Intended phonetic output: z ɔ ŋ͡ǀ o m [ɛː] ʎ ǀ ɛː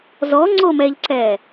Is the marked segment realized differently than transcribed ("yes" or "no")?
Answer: yes